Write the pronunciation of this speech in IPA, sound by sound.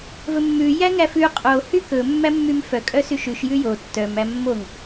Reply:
v ɵ mː ʉ j æ ŋ æ f ʉ qʼ o h y k ɵ mː æ mː y m f œ kʼ œ s y ʃ ʉ ʃ j ʉ j o tː œ m æ mː o ŋ

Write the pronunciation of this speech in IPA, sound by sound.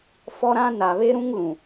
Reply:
f ɔ˦ ɾ ã˦ n a˨ β e˦ ɾ ũ˦ ŋ l ũ˨

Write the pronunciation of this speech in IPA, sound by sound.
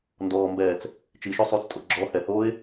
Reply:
n d ɔː m b ɛː t͡s | t͡ʃ i ʃ o sˤ uː t͡s tʼ o ɡ͡ǁ ɔ h ɛ h oː ɪ̯

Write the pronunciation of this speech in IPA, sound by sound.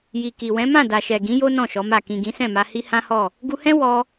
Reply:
j i˨ k i˨ w ɛ̃˨˦ m ã˦˨ d a˨ ʃ ɛ˨ ɡ ĩ˨˦ j o˦ n ɔ̃˦˨ ʃ ɔ˨˦ m a˦˨ k ĩ˨ ɡ ĩ˨˦ s ɛ̃˦˨ m a˧ h i˦ h ã˦ h ɔ˦˨ | ɡ u˧ h ɛ̃˦ w ɔ˧

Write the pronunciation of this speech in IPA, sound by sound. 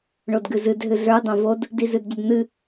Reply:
ɳ o d ɡ ɨ z ɨ d ɦ ɨ ɮ ə˞ dˤ õ v o d | d i z ɨ d ɟ ɐ d n̪ ɨ

